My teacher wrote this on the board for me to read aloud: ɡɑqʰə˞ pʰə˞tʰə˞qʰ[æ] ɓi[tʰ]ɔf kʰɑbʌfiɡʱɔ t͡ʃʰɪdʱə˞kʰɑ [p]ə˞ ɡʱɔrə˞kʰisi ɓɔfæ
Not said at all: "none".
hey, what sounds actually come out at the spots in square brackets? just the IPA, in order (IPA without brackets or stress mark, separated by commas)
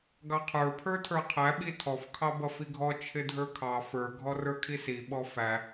æ, tʰ, f